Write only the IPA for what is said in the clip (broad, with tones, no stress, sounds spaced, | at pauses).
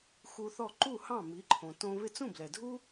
x u˧ θ ɔ˦˨ ǃ u˦˨ h ɑ̃˦˨ m i˨˦ ǃʰ õ˨ t õ˧ β ɪ˧ t͡s ũ˦˨ b l ɛ˨ dʱ u˦